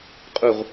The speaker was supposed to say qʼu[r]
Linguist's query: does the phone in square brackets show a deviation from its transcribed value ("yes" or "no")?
yes